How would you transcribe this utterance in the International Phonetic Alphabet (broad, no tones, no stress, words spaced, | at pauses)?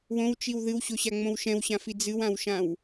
wõwt͡ʃiw ðɨwɕoɕaŋ͡mõw ʃɛ̃wɕãfi d͡zɨwãwʃãw